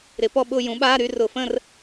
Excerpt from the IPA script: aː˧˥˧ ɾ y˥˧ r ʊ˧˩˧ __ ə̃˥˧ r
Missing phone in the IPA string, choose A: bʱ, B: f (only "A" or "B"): B